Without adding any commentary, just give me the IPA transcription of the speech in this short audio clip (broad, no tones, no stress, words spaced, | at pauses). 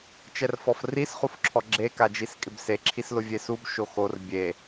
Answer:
t͡ʃɛrfɔfris χufǁʰɔɡ͡ǁe kad͡ʒiskʼɪbse ǁʰislʊvʲesub ʃoxor bʲe